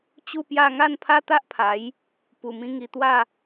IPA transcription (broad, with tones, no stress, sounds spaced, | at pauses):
t͡ɕ u˥˧ p j a˥˧ ŋ a˥˧ n pʰ a˦ t̪ a˦ ʔ pʰ a˨˦ j | p u˨˩ m ĩ˧ ŋ i˧ t̪ w a˥˧